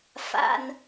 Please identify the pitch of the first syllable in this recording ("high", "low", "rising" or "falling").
high